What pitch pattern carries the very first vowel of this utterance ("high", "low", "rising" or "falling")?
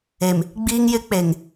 low